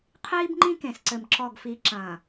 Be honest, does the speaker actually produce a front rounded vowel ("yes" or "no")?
no